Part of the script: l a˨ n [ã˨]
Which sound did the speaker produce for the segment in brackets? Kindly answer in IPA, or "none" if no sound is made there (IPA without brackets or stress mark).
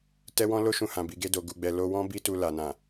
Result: ã˨